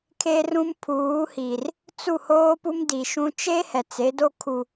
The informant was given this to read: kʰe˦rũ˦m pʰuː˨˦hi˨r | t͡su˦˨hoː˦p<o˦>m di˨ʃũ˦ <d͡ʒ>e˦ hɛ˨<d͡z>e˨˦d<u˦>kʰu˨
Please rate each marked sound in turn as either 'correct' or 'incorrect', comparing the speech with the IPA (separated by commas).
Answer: incorrect, incorrect, incorrect, incorrect